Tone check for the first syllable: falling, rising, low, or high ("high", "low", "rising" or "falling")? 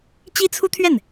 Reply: high